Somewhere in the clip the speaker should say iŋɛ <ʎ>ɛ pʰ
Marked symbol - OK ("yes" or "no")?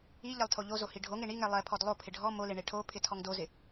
no